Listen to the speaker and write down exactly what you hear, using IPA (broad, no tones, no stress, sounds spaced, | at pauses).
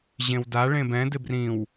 ʑ ẽ w d a ɭ ẽ b ɛ̃ d ɪ b r ĩ w